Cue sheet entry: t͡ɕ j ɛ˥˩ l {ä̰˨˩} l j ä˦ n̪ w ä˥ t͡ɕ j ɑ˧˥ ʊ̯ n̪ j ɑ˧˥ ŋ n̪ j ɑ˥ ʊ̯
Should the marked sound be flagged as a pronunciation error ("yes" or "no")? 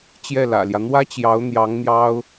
no